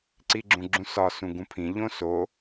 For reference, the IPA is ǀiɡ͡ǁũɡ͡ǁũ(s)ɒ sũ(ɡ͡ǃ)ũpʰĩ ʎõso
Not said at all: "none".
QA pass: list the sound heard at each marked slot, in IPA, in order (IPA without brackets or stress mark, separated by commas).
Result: s, ɡ